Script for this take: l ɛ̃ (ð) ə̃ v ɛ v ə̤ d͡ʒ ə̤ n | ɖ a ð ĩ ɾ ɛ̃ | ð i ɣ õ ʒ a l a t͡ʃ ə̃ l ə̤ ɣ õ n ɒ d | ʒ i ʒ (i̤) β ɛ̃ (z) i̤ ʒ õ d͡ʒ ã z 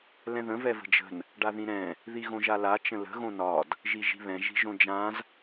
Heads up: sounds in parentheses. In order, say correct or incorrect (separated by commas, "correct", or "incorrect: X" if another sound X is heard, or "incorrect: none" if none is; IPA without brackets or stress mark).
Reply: correct, correct, incorrect: ʒ